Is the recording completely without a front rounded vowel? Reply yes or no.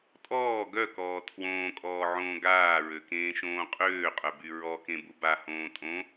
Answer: no